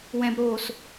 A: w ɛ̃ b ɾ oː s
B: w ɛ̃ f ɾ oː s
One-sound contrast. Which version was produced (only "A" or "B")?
A